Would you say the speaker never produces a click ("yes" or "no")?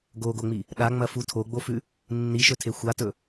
yes